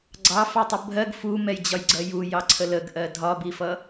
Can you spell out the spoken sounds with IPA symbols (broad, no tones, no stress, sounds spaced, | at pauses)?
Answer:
ɡ͡ǀ ɑ f ɑ tˤ ʊ bʱ ɜ ɡ f u m ɛ j d͡ʑ ɒ j ɡ͡ǀ ɜ j u j ɑ ǀʰ ə l ə ɡ ʔ ɜ dʱ ɒ b i f ʌ